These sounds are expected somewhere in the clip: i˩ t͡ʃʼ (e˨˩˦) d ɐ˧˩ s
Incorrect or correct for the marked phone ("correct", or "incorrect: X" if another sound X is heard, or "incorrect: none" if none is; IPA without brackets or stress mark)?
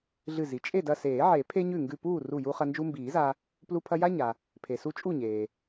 incorrect: e˥˨